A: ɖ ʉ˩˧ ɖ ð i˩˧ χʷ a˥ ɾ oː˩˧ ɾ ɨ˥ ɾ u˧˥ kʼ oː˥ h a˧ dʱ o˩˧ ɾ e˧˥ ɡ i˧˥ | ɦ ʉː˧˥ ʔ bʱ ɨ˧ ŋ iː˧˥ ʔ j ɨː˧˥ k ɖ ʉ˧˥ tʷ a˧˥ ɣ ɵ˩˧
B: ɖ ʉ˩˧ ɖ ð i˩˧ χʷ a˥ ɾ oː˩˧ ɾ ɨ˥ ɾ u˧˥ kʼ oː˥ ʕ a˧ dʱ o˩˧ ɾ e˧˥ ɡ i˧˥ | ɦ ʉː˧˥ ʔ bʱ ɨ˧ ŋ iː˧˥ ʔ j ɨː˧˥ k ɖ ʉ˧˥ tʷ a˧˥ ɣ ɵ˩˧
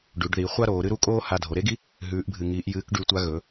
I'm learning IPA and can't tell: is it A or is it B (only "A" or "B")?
A